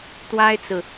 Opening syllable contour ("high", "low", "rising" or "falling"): high